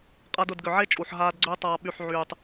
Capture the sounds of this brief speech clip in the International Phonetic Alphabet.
qʼ a˧ d ʊ˦˨ d ɡ ʏ˨ ʕ e˦ t͡ʃʼ u˨ ħ ɦ aː˧ d ɡ͡ǀ ʏː˦ tˤ aː˧ ɓ y˨ ħ ʕ yː˨ tˤ

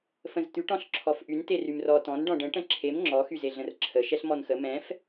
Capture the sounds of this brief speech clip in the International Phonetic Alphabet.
f ə̃ z t̪ y ʈ ɔ̃ ɬ ǁʰ ɔ f ʔ y n t e r y m r ɔ t ɔ̃ n ɖ ɔ̃ ɖ ə̃ ʈ ə̃ ǁʰ e m ŋ͡ǁ ɔ x y z e ɮ ə̃ r ǁʰ ə ʃ ɛ ɬ m ɔ n x ə m ɛ̃ f

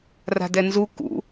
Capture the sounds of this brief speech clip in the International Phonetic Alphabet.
r a̤ d ɛ n z u k ṵ

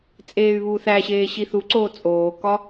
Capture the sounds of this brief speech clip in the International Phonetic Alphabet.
t͡sʼ eː y̯ β uː θ æ ɕ eː ɕ i θ u ǀ oː t͡sʼ oː k ɒ

